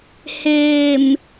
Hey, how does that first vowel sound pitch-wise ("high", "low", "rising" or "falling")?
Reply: low